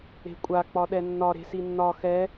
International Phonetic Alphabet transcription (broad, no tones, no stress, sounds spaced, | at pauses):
e̤ kʷʼ a k͡p ɒ ɗ ɛ nː ɒ ɾ e̤ s i nː ɒ x ɛ